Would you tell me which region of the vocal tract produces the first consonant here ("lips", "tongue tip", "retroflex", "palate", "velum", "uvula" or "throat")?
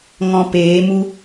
velum